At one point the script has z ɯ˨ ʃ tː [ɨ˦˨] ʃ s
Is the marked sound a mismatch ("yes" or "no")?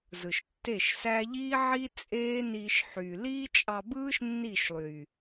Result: yes